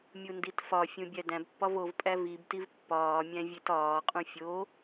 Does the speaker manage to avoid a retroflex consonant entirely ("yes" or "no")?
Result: yes